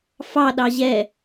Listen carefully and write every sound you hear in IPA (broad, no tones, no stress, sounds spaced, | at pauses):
f ɑ ɗ ɑ ʑ ɛ